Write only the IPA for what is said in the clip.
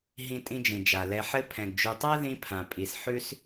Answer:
ɦĩ˦tʼĩ˦d͡ʒĩ˩d͡ʒa˩ lɛ˨ħɘ˦ pʰɛ̃˩ɡd͡ʒʉ˨tˤa˥ ðĩ˦pʰã˩ pʼi˩sħʉ˥s

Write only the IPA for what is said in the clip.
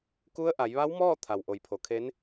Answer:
ku˧˥ə̯ ʔa˩˧jʋa˧˥wmɔː˥˨ t̪ʰa˩wʔo˩˧jpʰo˩kʰe˧˥n

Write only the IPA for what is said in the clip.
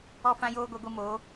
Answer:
ɔ˦fã˦joː˦ ɡʷɛ˦ɡʷi˦ moː˨˦

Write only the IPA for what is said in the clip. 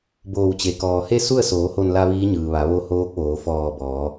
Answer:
boː˧˩wt͡ɕe˩ kɔː˩he˥˨su˥˨ə̯ soː˩˧ho˧˩nla˧ ʋiː˧˥ɲɯː˩ʋa˩˧ ʋo˧hoː˧˥k̚ʋoː˩˧ fɔː˧˩ bɔː˩˧

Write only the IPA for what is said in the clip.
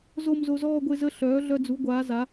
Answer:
zo˥˧m zo˧zɔː˥˧ɡʷe˥˧zə˥˧ ɬœː˩˥ɮœ˧ d͡zu˩˥ɡʷaː˩˥ za˩˥

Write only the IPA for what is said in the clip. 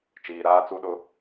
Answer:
t͡ʃiː˨ɾaː˦t͡su˦ɗʊ˦

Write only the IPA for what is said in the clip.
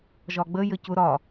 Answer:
ʒɒɡ͡bəjə cʊ ɾɒ

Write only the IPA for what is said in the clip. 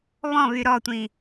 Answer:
βɔ̃βy ɾɔtʷĩ

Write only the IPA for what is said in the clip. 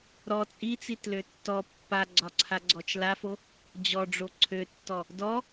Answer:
ɾɔ t͡sʼit͡sitlø tːɔ pːaɡ͡ǀɒǀʰaɡ͡ǀɔt͡ʃ lafo | d͡ʑɔɖ͡ʐo ǀʰøtːɔ | dɔ

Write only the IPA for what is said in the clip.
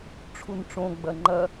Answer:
ʈ͡ʂʰunʈ͡ʂõ ɡ͡bɐŋ͡ǃɐ

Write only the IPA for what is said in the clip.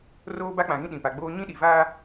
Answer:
roː˦ba˦k͡pã˨ɣĩ˦ ɗĩ˨pa˨ɡ͡boː˦ ɲĩ˦ɗi˨vaː˦

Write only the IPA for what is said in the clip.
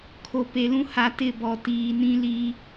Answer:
kʰo˨pe˨lũ˦ ha˨tɪ˦˨bɔ˨ tiː˨nĩ˦li˦

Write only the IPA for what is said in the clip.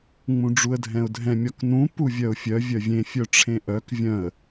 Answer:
ŋ͡mũɖ͡ʐuə̯dʱɛ̃ʊ̯dʱɛ̃ mʲɒknũ puvʲœʊ̯fʲœ vʲœvʲẽ fʲœʈ͡ʂʰẽʔœk vʲœ̃ə̯

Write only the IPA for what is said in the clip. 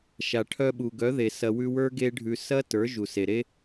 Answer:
ʃa˨ʈʰœ˧ɓu˨ ɡœ˨˦ðe˨ sɐ˧wʉ˦ wə˞˦ ɡe˦ɖʱʉ˧ sɐ˦ tə˞˨˦ʒu˨se˨ɾe˦

